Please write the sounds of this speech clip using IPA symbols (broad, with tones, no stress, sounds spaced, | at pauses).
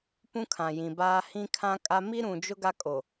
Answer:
p ũ˦ kʰ ã˨ j ĩ˨ b aː˦ h ĩ˦ kʰ ã˦ kʼ a˦ m i˦ ɾ ũ˨ d͡ʒ ʊ˦ ɡ a˦ kʼ o˨